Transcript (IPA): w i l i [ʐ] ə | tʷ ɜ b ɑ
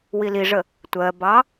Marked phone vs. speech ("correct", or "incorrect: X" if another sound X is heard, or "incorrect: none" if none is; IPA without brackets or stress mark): correct